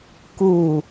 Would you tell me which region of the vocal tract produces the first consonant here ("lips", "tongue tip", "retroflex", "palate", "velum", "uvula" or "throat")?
velum